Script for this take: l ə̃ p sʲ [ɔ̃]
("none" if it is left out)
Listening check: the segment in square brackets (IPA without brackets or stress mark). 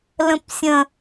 ə̃